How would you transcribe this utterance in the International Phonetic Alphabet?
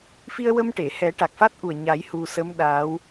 fi˧ə̯ wə˧mʈe˨˩˨hɛ˨˩˦ ʈa˨˩k̚fa˦˥t̚ʔu˨˩ə̯ ɲa˨˩˦j hu˧ sə˧˥m ɗa˧˥w

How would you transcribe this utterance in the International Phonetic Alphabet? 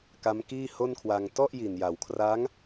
ka˦˥mkiː˥˩ho˥˩nkʰwa˧ŋ tɔ˥˩ʔji˨˩nja˩˦wkʰra˦˥ŋ

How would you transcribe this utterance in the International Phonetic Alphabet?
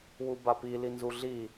wubapi linzuɮi

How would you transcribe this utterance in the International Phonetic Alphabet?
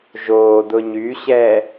ʒoː dʊɲyɕɛː

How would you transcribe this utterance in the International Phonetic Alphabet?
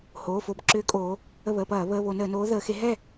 hoː˩˧˩fo˧˩b ǁʏː˨˥kʼoː˩˧ | ə˧˩βəː˩˧˩pɐː˧˩˧ βəː˩˧˩βo˧˩˧ nəː˧˩˧noː˨˥ ðəː˩˧xe˨˥ ɦɛ˥˩

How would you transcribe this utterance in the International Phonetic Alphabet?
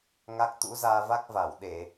ŋa˦˥k̚t̪ṵ˧˥ zaː˧va˦˥k̚va˧˩wɗe˧˩˨

